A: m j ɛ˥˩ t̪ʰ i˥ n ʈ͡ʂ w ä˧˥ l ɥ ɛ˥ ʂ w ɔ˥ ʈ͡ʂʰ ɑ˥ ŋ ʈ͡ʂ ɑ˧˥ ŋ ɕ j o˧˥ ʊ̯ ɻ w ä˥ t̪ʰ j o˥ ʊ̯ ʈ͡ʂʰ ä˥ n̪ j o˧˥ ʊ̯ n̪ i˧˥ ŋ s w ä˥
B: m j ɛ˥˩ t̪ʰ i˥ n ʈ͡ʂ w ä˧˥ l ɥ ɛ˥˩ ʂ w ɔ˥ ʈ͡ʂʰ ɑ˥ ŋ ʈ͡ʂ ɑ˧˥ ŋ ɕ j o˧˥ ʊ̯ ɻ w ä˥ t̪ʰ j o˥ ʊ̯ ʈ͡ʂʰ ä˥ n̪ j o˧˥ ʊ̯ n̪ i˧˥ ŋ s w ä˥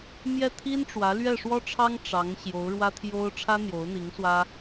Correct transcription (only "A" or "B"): B